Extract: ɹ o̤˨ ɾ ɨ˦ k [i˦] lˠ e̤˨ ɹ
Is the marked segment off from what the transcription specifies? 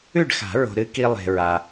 no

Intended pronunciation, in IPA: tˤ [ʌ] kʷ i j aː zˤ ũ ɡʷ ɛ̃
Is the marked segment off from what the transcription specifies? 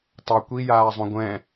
no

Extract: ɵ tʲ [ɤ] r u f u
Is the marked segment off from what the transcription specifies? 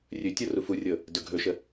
yes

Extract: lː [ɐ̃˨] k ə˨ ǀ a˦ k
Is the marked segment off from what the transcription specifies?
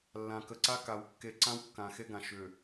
yes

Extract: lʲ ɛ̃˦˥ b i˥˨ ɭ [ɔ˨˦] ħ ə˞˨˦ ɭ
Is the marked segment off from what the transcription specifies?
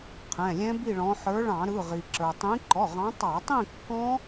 yes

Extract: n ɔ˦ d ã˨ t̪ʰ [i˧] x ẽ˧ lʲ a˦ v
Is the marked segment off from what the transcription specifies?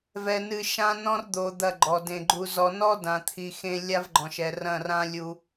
yes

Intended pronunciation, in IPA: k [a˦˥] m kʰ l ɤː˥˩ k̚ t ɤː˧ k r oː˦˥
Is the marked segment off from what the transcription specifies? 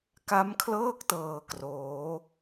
no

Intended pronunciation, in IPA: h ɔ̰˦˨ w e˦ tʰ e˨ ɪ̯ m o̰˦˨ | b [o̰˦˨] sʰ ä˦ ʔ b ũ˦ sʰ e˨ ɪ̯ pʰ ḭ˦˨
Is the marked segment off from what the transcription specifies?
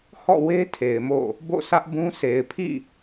no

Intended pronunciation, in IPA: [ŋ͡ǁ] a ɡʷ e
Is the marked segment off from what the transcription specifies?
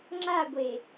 no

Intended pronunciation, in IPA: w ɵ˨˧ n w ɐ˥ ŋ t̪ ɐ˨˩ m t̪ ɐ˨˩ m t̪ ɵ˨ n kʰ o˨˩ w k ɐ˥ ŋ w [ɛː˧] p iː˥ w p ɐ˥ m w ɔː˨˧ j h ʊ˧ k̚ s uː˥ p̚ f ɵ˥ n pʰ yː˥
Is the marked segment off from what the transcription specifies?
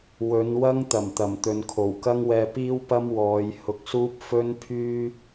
no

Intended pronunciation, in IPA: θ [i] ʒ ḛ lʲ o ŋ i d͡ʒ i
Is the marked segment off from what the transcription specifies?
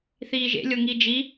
yes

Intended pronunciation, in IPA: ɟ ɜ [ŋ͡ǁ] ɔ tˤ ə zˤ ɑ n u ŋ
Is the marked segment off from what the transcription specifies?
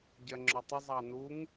no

